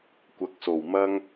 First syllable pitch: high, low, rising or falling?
rising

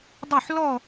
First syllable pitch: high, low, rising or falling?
falling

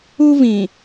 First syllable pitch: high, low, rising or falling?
high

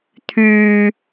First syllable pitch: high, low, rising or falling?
low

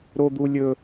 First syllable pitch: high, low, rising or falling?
high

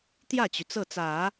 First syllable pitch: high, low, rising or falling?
falling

